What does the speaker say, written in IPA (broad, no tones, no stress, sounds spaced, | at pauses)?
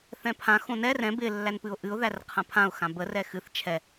θ ɛ̃ pʰ ã x õ n ɛ r ɛ̃ b ɪ lː æ n p ɨ ʊ̯ ʔ ɨ ʊ̯ ð æ r qʰ ã pʰ ã ʊ̯ x ã b ə r ɛ x ɨ θ t͡ʃʰ ɛ